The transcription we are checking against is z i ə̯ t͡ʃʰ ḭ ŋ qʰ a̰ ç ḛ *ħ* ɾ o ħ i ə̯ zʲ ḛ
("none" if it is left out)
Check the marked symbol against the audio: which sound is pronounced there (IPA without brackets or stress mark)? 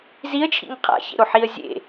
none